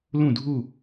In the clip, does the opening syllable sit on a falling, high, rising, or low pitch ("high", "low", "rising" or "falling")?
falling